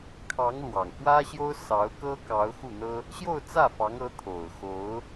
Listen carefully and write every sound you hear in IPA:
kʰ ɑ˧˥ ŋ l w ɑ˨˩ ŋ f w ä˥ ɕ j o˥ ʊ̯ s ɑ˧˥ ʊ̯ k ɤ˥ k ɑ˧˥ ʊ̯ x u˥˩ n̪ ɤ˥ | ɕ j o˥˧ ʊ̯ t͡s ä˥˩ f ɑ˧˥ ŋ ɤ˧˥ t̪ʰ o˨˩ ʊ̯ x o˧˥ ʊ̯

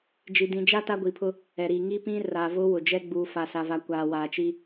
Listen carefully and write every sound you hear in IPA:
d͡ʒ i˨ d ĩ˨ d͡ʒ a˦ t a˦ ɡʷ i˨ pʰ ʊ˦ | ɛ˨ ɾ i˨ ŋ i˦ p ĩ˦ r a˨ v ʊ˦ w ʊ˨ d͡ʒ ɛ˦ ɡ͡b uː˨ f a˨ s a˨ v a˨ kʷ aː˨ w aː˨ t͡ʃ i˦

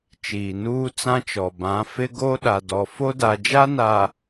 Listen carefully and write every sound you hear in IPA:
t͡ʃ iː˨ n uː˦ t͡s ã˦ t͡ʃ ɔ˨ b ã˨˦ f ɪ˦ ɡ o˦ ɗ a˨ d ɔ˨ f o˦ d a˨ d͡ʒ a˦ n a˨

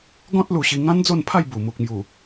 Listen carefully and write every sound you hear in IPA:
ɡ ɔ̃˦ t̚ l u˧ ɕ i˧ ŋ ã˦ n d͡z o˥˧ n pʰ a˥˧ j b u˨˩ m u˨ k̚ m j u˨˩

